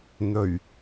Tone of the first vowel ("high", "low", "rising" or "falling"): low